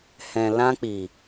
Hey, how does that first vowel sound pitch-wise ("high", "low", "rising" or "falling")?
low